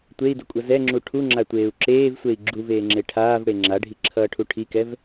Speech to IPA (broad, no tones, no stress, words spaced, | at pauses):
tʷei̯dʌkʷʼʌ zɛŋ͡ǁu ʈʰuŋ͡ǁatʷeːu̯ ǁeːvsʷei̯ ɡ͡ǁuveːŋ͡ǁe ʈʰaːvɽe ŋ͡ǁaɖʱiǁʰʌːʈʰu ʈʰikɛv